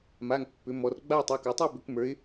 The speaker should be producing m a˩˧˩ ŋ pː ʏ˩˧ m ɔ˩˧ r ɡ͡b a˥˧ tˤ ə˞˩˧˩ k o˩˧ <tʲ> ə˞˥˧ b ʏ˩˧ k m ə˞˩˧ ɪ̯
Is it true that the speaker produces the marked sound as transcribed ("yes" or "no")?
no